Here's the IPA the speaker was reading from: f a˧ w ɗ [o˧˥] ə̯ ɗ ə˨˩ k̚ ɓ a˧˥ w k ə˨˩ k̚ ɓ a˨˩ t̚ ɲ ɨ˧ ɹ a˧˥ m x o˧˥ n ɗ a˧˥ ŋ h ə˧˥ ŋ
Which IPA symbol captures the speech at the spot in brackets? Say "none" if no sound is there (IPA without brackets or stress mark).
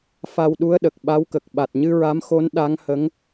u˧˥